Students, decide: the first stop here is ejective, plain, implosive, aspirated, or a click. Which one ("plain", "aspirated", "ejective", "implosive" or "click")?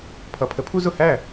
aspirated